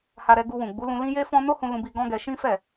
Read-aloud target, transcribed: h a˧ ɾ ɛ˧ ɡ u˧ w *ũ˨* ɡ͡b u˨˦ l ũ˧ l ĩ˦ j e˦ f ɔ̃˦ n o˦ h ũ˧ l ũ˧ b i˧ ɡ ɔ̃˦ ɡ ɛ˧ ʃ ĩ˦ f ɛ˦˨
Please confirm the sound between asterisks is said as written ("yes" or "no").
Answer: yes